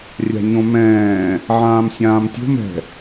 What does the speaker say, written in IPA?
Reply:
rʲ a̤ ɲ õ m ɛ̃ː | ʕ ãː m sʲ ãː m tʲ o̤ m ɛ̤

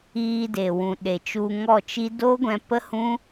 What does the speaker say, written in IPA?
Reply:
iː˧ d e˨ w ũ˨ ɗ e˨ t͡ʃ u˧ ŋ ɔ˦˨ t͡ʃ i˦ d o˦ ɡʷ ɛ̃˧ p ə˦ h ũ˦

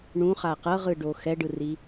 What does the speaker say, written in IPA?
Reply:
ɳ ũ χ a q ɤ ʁ ɯ ɖ o x ɛ ɖ ɯ r i

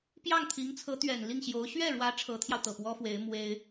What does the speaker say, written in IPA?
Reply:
p j ɑ˥˩ ŋ t̪ʰ i˧˥ ŋ t͡sʰ ɤ˧˥ t̪ ɥ ɛ˨˩ n l i˥˩ ŋ ɕ j o˧˥ ʊ̯ ɕ ɥ ɛ˥˩ ɻ w ä˧˥ ʈ͡ʂʰ ɤ˧˥ t̪ʰ j ɑ˧ ʊ̯ t̪ ɤ˨˩ p w ɔ˥ f w e˧˥ ɪ̯ m w e˥ ɪ̯

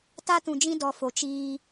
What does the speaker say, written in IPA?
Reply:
t a˦ t ũ˨ d͡ʒ ĩ˦ d ɔ˨ f o˨ t͡ʃ iː˦

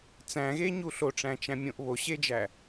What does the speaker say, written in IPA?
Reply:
t͡s æ̃ ɣ e ɲ u ɬ o ʈ͡ʂ æ̃ t͡ʃ æ̃ mʲ õ ʔ β o ɕ e d͡ʒ æ

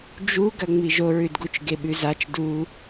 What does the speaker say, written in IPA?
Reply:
d͡ʒ u ɡ ɐ ŋ͡m i ʒ o ɹ ʉ d ɡ u t͡ʃ ɡ e ɓ ʉ z a t͡ʃ d u

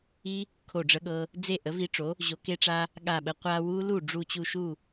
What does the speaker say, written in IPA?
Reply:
i˦˥ | kʰ o˧˩ ɖ͡ʐ ə˧ ɠ ɤ˧ | d͡z e˥˩ ʔ ə˩˥ v i˧ ʈ͡ʂ o˩˥ | ʑ o˩˥ k e˦˥ ʈ͡ʂ a˦˥ | ɠ a˧˩ ɓ ə˩˥ qʷ a˧ w u˦˥ l u˥˩ ɖ͡ʐ u˧˩ t͡ɕ u˧˩ ʃ u˥˩

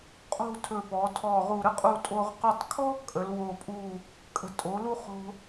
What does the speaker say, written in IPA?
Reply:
qʼ o̤˥˧ tʰ ɵ˧˩ p ɔ˩˧ tʰ ɔ˧˩ ʁ u˧˩ ɾ ə˥ qʼ u˧ tʼ o˧ ʁ q u˧˩ tˤ kʰ ɔ˥ kʼ ə˩˧ l w o˧˩ pʼ u˧˩ | kʼ ə̤˧˩ tʼ o˩˧ l u˧ χ o̤˧

